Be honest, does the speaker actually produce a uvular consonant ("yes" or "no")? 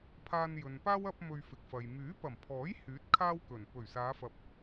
no